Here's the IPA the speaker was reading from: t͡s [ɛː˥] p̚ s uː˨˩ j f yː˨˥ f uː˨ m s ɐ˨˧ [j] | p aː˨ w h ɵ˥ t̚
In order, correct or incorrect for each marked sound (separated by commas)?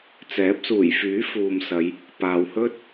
incorrect, correct